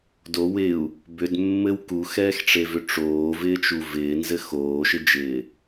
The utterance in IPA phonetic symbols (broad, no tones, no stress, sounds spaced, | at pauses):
d o w ɪ u̯ | b ʏ d mː ɘ w k u x ɛː x ʈ͡ʂ e v ʏ ʈ͡ʂ oː v ɪː t͡ʃ u v ɪː n z ɘ x oː ʃ ɪ d͡ʒ ɪː